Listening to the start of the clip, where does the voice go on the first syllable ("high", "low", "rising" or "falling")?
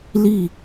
falling